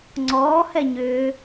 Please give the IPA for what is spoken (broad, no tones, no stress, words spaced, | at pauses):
ŋ͡ǀɔː hɛɲʏː